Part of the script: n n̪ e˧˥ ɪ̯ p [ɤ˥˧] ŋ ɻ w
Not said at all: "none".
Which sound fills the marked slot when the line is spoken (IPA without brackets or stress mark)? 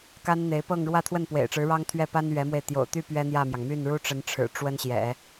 ɤ˥˧